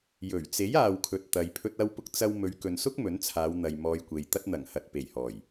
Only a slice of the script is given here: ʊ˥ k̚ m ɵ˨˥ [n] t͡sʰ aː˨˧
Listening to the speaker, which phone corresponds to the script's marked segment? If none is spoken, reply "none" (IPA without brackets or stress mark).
n